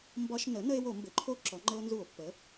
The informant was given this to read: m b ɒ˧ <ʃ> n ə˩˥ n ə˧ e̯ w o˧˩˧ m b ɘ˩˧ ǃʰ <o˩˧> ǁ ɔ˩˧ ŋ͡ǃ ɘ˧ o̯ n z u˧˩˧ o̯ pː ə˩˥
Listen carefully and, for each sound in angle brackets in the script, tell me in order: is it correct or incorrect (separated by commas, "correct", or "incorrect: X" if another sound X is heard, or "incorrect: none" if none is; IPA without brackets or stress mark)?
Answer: correct, incorrect: o˦˥